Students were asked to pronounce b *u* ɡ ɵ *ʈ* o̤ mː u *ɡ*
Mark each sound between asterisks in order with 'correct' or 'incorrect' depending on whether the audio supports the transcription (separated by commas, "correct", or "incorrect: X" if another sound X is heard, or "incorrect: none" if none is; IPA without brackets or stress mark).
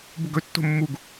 correct, incorrect: tː, correct